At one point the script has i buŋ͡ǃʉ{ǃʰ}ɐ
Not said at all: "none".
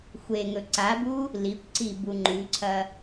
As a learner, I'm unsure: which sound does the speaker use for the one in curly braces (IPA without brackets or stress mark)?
ǀʰ